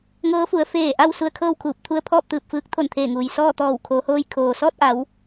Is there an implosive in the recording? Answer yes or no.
no